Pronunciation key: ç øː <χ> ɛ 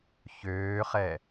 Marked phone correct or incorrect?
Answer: correct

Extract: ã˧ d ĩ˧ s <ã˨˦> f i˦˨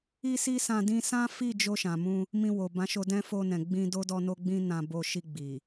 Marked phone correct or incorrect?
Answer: incorrect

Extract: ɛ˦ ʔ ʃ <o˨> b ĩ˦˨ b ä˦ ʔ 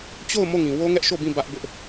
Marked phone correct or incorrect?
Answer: incorrect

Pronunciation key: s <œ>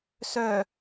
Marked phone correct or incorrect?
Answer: correct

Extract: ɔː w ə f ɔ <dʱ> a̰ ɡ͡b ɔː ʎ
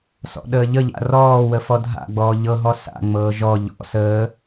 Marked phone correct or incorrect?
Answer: correct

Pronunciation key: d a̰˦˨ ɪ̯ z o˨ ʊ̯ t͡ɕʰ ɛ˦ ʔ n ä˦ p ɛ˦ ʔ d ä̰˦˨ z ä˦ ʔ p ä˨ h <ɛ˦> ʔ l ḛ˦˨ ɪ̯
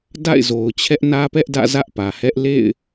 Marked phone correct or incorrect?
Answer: correct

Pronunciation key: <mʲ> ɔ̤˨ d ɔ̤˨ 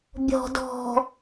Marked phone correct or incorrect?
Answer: incorrect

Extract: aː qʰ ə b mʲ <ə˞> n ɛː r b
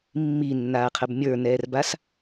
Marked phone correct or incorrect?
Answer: correct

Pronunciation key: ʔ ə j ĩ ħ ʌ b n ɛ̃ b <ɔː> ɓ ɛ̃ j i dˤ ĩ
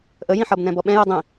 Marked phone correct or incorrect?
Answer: incorrect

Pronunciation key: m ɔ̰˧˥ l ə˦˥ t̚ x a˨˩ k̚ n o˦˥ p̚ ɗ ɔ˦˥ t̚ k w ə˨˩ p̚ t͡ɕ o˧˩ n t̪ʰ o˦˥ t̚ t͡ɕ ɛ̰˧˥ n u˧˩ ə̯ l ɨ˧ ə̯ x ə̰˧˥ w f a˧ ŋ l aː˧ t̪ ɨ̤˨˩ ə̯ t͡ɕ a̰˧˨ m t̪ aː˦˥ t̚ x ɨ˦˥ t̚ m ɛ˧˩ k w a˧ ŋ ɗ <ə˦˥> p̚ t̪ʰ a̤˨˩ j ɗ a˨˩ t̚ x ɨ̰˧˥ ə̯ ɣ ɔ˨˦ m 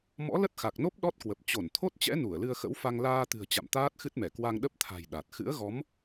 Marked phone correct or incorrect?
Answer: correct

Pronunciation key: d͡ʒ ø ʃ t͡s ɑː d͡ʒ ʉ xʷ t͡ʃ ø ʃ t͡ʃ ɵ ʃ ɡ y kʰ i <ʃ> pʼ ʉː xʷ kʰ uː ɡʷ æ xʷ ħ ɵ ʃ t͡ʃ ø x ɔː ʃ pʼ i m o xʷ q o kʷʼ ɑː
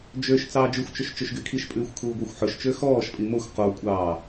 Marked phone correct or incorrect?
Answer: correct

